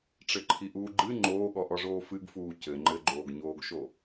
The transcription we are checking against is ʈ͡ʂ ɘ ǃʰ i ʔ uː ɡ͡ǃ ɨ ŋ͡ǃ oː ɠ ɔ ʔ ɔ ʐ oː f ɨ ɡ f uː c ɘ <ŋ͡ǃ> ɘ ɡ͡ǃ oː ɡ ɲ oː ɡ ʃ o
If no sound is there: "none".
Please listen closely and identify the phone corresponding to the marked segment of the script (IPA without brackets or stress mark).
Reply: ŋ͡ǃ